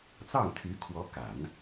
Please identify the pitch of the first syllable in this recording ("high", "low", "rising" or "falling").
falling